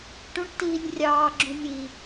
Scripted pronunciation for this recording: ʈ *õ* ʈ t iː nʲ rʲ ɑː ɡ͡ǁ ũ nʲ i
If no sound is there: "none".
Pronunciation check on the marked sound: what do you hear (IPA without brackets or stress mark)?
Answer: ũ